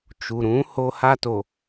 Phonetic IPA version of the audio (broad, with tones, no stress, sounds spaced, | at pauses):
t͡ʃ u˨ ɾ ũ˨˦ h o˦ h a˦ t o˨